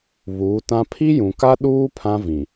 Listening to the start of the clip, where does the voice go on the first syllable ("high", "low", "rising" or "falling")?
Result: rising